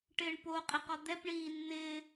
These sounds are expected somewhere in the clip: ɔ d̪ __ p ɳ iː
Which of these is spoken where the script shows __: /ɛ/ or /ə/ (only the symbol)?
ɛ